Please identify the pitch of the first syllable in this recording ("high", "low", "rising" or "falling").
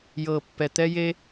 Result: low